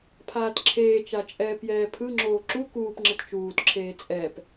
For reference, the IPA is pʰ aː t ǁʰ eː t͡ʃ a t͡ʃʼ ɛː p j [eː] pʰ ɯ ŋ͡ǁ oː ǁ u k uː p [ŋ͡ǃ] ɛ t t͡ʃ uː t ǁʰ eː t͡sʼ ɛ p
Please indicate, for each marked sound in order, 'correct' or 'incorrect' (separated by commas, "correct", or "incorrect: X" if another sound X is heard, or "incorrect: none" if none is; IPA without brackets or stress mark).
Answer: incorrect: ɛː, incorrect: ŋ͡ǁ